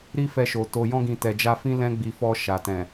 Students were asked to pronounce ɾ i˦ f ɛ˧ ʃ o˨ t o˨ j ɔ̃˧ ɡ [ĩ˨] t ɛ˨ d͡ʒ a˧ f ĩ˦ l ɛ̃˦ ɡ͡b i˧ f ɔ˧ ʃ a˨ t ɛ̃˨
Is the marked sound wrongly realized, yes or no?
no